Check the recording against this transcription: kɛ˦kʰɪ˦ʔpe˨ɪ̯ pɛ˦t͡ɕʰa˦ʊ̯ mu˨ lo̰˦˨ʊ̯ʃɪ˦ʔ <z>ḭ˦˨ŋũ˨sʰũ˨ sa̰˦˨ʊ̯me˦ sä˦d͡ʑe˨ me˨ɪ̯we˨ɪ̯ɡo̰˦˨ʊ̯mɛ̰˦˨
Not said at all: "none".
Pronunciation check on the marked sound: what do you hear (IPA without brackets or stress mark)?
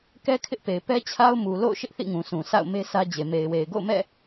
θ